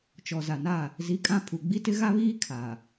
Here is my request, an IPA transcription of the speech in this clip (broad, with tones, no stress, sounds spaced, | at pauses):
t͡ʃ ɔ˨ z a˨ n a˦˨ | z i˨˦ kʼ ã˦˨ pʰ u˨ ɡ͡b i˦ t ɪ˦ ɣ a˦ β iː˦ kʰ a˨